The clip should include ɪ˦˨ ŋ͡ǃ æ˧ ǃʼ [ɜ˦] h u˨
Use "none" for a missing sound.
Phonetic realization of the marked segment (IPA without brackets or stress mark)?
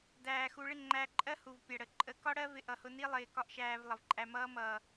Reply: ɜ˦